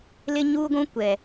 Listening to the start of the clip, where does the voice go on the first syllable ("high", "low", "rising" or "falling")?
high